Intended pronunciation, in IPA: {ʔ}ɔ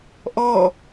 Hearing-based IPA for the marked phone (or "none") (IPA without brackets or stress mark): ʔ